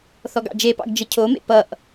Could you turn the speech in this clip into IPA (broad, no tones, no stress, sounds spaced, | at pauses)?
θ ɔ ɡ ɑ̰ d͡ʒ e p ɑ̰ ɡ d͡ʒ ə cʰ o m ḛ p ʌ ʔ